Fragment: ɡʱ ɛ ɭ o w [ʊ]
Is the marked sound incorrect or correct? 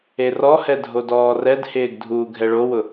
correct